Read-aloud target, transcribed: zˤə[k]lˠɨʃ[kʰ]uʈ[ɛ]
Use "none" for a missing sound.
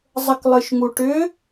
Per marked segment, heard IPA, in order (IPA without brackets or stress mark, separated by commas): k, ŋ, ʏ